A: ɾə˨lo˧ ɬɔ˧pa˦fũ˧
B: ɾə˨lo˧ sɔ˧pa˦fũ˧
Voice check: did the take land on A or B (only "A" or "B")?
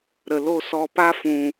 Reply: B